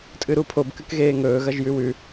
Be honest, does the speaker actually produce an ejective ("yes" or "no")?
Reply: yes